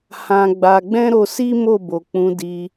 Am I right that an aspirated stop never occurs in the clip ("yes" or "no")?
yes